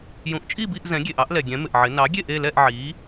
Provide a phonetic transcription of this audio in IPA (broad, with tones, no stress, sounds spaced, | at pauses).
j ũ˩˥ ʔ t͡ʃʼ i˥˨ b i˥˨ ʔ z ɛ̃˩˥ ɡʲ e˩ ʔ ɑ˩˥ ʔ l ɛ˩ ɡʲ ɛ̃˩˥ m ɪ˩ ʔ ʕ ɪ˩˥ n ɑ˩˥ ɡʲ e˥˨ ʔ e˥˨ l ɛ˥˨ ʔ ʕ i˩˥